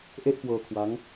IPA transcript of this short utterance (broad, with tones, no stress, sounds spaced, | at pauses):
ʔ e˥˩ ʔ k w ɤː˧ kʰ w a˦˥ ŋ